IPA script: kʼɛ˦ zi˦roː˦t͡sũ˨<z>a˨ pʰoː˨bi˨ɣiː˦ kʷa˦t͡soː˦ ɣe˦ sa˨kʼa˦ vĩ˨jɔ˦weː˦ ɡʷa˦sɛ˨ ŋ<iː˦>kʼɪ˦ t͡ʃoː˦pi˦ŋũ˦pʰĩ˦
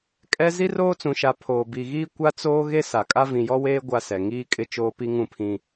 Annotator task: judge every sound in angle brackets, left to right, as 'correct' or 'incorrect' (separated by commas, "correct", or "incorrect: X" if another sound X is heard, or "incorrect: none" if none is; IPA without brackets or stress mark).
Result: incorrect: ʃ, correct